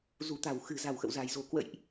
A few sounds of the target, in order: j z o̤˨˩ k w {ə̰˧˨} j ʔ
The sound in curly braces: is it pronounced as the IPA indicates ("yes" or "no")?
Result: yes